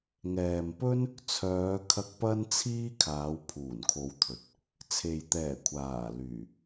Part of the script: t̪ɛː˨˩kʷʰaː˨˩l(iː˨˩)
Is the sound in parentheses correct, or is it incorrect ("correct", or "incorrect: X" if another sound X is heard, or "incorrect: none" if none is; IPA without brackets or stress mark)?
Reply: incorrect: yː˨˩